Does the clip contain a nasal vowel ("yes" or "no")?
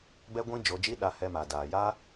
yes